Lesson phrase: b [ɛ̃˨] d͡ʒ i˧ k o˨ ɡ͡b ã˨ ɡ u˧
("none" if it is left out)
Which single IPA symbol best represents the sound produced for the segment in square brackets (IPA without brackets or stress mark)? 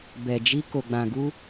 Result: ɛ˨